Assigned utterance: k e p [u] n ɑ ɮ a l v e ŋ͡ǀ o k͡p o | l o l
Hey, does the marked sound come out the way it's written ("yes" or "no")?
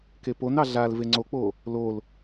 no